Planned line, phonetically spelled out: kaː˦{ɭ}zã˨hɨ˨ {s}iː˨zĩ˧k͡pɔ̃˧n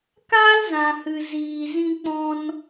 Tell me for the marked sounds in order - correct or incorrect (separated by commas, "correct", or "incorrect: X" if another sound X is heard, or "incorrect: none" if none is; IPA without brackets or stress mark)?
incorrect: l, incorrect: z